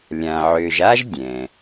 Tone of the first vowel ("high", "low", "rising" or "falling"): low